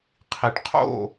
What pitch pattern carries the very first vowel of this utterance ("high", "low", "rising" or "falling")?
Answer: low